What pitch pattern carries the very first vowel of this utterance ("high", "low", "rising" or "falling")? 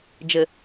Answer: low